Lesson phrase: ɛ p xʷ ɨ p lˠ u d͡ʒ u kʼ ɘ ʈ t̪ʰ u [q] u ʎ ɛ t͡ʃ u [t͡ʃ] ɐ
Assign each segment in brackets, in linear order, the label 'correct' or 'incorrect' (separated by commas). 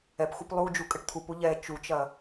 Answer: incorrect, correct